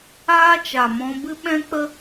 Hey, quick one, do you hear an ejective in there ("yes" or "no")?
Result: no